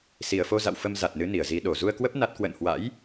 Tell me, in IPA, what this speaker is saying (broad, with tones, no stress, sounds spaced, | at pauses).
s i˨˩ ə̯ f o˧ z a̰˧˨ w f ə˧ m z a˨˩ t̚ n ɨ˨˦ n i˧˩ ə̯ z i˨˦ ɗ o˨˩ z u˧ ə̯ k w ə˦˥ p̚ n a˦˥ t̚ k w ə̰˧˨ n h w a̰˧˥ j